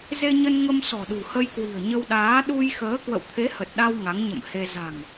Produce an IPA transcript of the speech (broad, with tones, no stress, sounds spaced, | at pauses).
z e˧ ɲ ə˧ n ŋ ə˧ m s ɔ̤˨˩ ɗ ṳ˨˩ h ə˧ j k w i̤˨˩ ə̯ ɲ ə˧ w ɗ aː˨˦ ɗ u˧ j x əː˨˦ k w ə̰˧˨ w t̪ʰ e˨˦ h ə˨˩ t̚ ɗ a˧ w ŋ a˨˦ ŋ ɲ ə̰˧˨ m h e˧ z a̤˨˩ ŋ